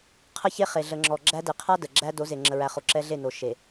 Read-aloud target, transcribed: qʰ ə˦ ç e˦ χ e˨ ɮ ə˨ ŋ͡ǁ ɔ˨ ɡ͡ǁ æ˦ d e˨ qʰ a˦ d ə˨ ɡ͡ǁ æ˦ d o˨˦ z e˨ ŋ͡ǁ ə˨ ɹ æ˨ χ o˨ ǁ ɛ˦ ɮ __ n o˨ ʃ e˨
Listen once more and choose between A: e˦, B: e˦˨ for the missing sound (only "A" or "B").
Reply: B